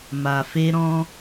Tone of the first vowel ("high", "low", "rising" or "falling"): low